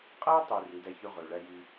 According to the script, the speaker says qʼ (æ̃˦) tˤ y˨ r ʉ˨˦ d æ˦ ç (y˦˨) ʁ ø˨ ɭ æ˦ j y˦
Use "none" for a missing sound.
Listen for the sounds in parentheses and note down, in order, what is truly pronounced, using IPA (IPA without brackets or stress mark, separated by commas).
æ˦, y˦